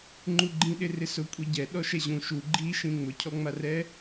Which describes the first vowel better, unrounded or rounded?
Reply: rounded